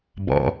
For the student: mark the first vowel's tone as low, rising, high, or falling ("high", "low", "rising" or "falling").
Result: low